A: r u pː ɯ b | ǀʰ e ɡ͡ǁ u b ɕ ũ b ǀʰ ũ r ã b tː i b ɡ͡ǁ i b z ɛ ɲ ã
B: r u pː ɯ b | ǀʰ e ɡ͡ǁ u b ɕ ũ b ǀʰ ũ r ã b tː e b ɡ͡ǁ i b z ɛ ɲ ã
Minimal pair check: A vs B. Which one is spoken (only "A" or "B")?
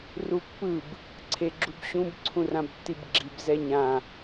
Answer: A